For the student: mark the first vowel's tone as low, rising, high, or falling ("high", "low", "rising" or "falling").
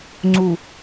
low